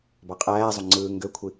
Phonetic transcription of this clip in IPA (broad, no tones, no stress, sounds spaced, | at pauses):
b ɑ qʼ æː zˤ o ŋ͡ǀ ɯː ŋ ɡ ø kʷʰ i